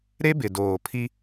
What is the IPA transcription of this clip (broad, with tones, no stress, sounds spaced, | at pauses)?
ɾ e˦ b ɪ˨ d oː˨ pʰ i˦